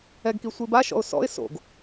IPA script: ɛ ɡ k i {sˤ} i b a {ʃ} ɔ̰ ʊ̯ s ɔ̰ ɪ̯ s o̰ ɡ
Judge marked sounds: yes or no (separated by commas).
no, yes